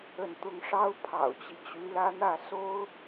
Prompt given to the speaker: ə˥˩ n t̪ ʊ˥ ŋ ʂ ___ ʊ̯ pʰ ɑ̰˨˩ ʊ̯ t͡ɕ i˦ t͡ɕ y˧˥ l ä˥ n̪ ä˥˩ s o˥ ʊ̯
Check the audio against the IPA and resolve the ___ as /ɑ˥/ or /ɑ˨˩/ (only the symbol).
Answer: ɑ˥